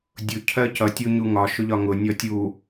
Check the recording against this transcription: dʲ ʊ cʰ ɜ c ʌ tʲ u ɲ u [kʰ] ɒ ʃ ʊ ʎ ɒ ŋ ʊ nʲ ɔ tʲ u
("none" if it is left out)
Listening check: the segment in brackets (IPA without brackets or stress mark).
ŋ